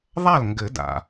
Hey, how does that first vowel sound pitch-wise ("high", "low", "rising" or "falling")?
falling